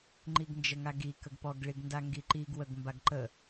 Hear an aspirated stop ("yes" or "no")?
no